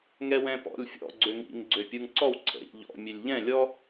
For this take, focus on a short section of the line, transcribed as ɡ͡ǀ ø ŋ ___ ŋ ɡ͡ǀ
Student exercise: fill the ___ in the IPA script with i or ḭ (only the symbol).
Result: ḭ